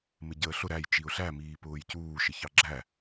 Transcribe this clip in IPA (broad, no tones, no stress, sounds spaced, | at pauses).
m ɪ ɟ əː ɬ ʊ ɾ æ j t͡ʃ i ʊ̯ ɬ æ m iː p ʊː j c uː ʃ ɪ ç ɑ ɡ͡ǁ æ